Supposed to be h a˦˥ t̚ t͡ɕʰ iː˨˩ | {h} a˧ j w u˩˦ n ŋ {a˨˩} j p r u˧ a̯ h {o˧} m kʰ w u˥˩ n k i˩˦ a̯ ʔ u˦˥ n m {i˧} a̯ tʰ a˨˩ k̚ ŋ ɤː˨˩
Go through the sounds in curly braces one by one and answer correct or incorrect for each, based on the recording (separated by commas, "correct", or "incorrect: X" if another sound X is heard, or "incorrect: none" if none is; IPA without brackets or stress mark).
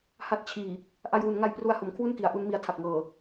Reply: incorrect: ʔ, incorrect: a˧, incorrect: o˩˦, correct